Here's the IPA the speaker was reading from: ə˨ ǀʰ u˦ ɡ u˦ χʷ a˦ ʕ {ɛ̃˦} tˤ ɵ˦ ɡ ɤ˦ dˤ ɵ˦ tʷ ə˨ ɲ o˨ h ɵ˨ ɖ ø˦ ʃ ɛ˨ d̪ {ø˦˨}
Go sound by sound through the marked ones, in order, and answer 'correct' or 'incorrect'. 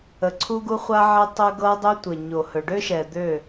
incorrect: ɛ˦, correct

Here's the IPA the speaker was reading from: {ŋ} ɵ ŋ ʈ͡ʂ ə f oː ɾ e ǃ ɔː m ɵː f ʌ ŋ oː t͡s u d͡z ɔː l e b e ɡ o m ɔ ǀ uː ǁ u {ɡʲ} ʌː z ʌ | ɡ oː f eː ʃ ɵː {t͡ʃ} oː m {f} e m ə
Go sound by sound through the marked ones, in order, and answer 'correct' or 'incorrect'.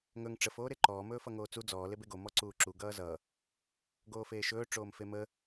correct, incorrect: ɡ, incorrect: ʈ͡ʂ, correct

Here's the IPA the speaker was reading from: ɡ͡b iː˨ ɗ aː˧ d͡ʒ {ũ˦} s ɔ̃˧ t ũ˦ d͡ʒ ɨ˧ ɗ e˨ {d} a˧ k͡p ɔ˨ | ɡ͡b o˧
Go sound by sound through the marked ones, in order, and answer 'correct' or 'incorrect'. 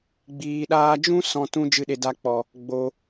correct, correct

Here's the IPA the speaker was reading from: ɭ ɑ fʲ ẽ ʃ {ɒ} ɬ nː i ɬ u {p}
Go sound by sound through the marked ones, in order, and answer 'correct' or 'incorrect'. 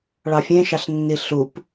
incorrect: ɑ, correct

